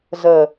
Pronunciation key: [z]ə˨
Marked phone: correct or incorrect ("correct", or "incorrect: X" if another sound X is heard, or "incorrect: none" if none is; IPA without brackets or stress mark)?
correct